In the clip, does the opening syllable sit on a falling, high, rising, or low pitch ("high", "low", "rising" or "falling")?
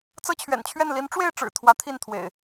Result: high